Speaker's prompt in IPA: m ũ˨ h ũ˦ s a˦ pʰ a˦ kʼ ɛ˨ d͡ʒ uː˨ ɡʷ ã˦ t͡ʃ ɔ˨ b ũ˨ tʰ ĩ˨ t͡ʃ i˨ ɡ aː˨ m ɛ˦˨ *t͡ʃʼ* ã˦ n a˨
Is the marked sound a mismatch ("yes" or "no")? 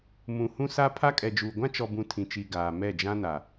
yes